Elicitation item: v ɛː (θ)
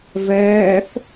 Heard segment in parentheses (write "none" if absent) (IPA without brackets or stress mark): θ